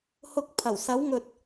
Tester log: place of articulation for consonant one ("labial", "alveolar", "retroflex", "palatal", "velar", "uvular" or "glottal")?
glottal